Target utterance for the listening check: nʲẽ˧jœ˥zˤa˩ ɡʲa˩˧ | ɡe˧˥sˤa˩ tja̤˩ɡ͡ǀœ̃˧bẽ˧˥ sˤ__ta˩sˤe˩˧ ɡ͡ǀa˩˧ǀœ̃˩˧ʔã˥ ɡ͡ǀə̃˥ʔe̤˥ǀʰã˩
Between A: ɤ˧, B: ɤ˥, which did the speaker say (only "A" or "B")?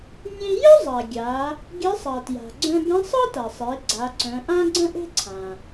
B